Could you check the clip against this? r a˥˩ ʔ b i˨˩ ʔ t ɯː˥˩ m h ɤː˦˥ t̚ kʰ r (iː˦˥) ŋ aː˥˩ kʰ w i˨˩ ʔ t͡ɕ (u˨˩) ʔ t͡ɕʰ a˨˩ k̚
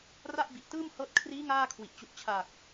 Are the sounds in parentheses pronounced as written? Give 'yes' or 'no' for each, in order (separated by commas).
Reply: yes, yes